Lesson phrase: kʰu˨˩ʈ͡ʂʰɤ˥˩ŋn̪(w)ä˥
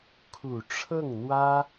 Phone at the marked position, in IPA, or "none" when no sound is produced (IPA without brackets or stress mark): w